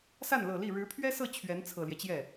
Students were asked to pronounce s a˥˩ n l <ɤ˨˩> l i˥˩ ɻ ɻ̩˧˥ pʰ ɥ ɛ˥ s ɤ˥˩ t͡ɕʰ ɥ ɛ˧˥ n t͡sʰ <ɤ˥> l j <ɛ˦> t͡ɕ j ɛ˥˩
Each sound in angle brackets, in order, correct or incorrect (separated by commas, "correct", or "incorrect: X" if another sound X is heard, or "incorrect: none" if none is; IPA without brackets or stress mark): correct, incorrect: ɤ˨˩, correct